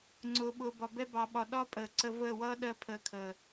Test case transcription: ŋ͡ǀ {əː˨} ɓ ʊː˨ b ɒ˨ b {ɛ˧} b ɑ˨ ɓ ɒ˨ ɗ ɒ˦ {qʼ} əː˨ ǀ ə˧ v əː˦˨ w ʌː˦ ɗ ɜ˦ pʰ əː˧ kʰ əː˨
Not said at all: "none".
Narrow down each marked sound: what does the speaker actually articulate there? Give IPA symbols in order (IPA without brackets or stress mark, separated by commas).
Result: ʊː˨, ɛ˧, pʼ